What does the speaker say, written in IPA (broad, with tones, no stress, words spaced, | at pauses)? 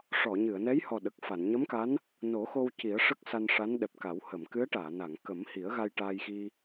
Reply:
ʂɔ˨˩˨ɲɨ˨˩˨ə̯nɛ˧˥jhɔ˨˩ ɗə˨˩k̚fa˨˩˨n ɲə˧˥mka˧˥n | no˨˩˦xo˧w ci˨˩˦ə̯ʂə˦˥k̚ sa˧nʂa˧˥n ɗɛ˨˩p̚ka˨˩˦w hə˨˩˨mkɨ˧˥ə̯ʈaː˨˩˨na˨˩˨ŋ kə˨˩˦mhi˨˩˦ə̯ɣa˧j ʈaː˧jxi˧